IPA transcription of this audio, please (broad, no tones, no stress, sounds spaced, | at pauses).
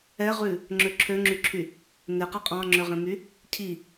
ɛ ʁ ʉ | ŋ͡ǁ ø ǁʰ ø ŋ͡ǁ y ǁʰ y | n e q ɛ qʼ ɑ̃ ŋ͡ǁ ø ʁ ẽ m y | cʰ i